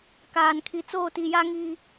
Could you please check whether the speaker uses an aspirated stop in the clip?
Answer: yes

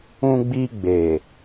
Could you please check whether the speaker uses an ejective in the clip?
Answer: no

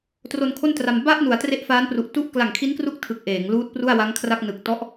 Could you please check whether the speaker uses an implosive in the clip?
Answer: no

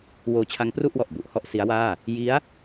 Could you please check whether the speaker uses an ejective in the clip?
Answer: no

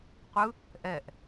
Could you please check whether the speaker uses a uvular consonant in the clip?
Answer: yes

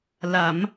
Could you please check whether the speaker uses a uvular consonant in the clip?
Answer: no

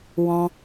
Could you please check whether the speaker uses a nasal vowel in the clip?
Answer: yes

